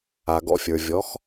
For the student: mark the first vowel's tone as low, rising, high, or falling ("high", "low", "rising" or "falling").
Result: low